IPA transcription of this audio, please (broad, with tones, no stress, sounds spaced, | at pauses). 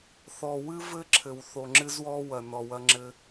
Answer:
θ ɔ˨ w ɨ˦ v ɘ˦ ǁʰ ɘ˨ w θ o˨ ŋ͡ǁ ɨ˧ z w ɔ˧ w ɐ˨ n ɔ˨ w ɐ˧ ŋ͡ǁ ɘ˦